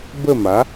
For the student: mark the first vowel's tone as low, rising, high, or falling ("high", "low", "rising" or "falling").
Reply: falling